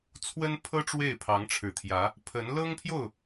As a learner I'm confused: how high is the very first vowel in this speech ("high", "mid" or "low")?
mid